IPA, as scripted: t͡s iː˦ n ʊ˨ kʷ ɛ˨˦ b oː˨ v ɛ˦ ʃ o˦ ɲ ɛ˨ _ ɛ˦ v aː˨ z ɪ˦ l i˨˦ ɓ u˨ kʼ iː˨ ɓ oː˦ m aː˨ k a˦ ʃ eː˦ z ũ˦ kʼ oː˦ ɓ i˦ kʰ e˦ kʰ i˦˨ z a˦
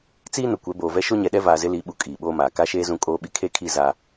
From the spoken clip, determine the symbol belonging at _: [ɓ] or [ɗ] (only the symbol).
ɗ